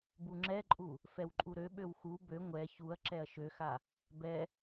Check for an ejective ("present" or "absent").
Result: present